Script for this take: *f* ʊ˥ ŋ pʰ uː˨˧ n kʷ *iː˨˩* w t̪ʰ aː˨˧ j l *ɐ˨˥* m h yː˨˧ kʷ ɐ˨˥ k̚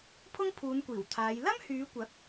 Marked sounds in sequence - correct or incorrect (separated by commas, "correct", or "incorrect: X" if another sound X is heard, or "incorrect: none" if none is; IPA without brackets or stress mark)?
incorrect: pʰ, correct, incorrect: ɐ˥